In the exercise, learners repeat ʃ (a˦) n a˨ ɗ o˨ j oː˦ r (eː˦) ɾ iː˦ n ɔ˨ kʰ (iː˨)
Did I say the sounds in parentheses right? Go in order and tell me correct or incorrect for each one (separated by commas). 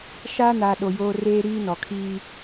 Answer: correct, correct, incorrect